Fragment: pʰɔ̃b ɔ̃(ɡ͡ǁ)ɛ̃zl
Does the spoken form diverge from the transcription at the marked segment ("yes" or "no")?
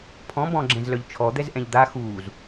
no